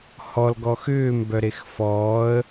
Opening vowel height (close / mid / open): mid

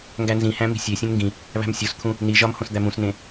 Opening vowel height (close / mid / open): open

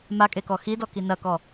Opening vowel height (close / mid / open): open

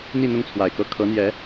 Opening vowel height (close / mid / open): close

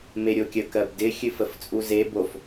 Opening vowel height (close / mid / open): mid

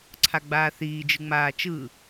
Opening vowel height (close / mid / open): open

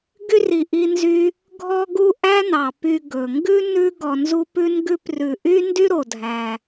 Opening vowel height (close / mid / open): close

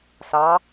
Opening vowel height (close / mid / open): open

